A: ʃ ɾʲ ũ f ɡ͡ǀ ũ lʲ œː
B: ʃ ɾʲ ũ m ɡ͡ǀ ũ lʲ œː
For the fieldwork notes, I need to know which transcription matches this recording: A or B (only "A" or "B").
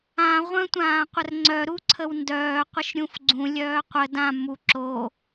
A